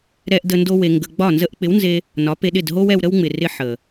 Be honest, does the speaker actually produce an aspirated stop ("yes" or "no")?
no